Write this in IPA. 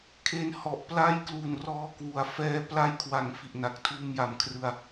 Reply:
kʰ e˧ n h ɔ˨˩ ʔ p l a˥˩ j k l u˨˩ n r ɔː˧ k w u˩˦ a̯ f ɛː˦˥ p l a˦˥ j kʰ w a˨˩ ŋ f i˨˩ ʔ n a˨˩ k̚ tʰ uː˧ m j a˨˩ m kʰ r ɯ˧ a̯

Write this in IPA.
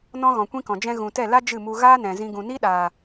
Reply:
n ɔ̃˦ ɣ ɔ̃˨ kʷ ĩ˦ k ɔ̃˨ d͡ʒ ɛ̃˧ ɣ ũ˨ t ɛ˦˨ l a˦ d͡ʒ ɨ˦˨ m u˧ ɣ aː˦ n ɛ̃˨ z ĩ˧ ɡ ũ˨ n i˦ ɗ aː˨

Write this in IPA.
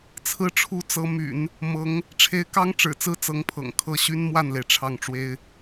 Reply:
t͡sʰ ɹ̩˧˥ ʈ͡ʂʰ u˧˥ t͡s ɤ˧˥ m y̰˨˩˦ n | m ɤ˧˥ ŋ | ʈ͡ʂʰ e˧˥ ɪ̯ k ɑ˥ ŋ ʈ͡ʂ ɻ̩˨˩ t͡s ɹ̩˥ t͡s ɤ˧˥ ŋ pʰ ɤ̰˨˩ ŋ kʰ ɤ˥˩ ɕ y˥ n m w a˥˩ n l e˩ ɪ̯ ʈ͡ʂʰ ɑ˥˩ ŋ ʈ͡ʂ w e˥ ɪ̯

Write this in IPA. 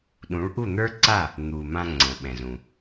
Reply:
ɗ ũ˩˥ ɭ ʔ u˥˩ n̪ ə˞˥ ǀ a˥˩ | n̪ u˩ m ã˧ ŋ͡ǀ ə̃˩ ɓ ɛ̃˩ z ũ˩

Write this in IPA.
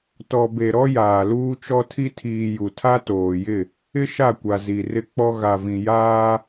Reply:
t ɔ˨ b e˨ ɾ ɔ˦ j aː˨ l uː˦ t͡ʃ ɔ˦ tʰ i˦ tʰ iː˨ j u˨ tʰ a˦ t oː˨ j ɪ˦˨ | ɪ˦ ʃ a˦˨ kʷ a˨ z i˨ r ɪ˦ k͡p ɔ˦ ɣ a˨ v ĩ˨ j aː˦

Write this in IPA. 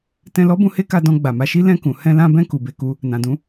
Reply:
t ɛ̃˧ l ɔ˦ b ũ˧ h e˦ k a˧ d ɔ̃˧ ɡ͡b a˨ m a˨˦ ʃ i˦ l ɛ̃˦˨ k ũ˨ h ɛ̃˧ l ã˧ b ɛ̃˧ k u˨ b e˧ k u˦ | n ã˨ d ũ˨˦

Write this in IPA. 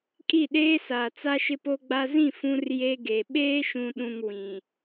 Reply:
kʼ i˦˨ ɗ eː˦ s aː˨ t͡s a˦ ʃ ɪ˦ p o˦ ɡ͡b a˦ z ĩ˦˨ f ũ˦ r j e˦ ɡ e˨ ɓ eː˦ ʃ ũ˨ ɗ ũ˨ ŋ w ĩ˨

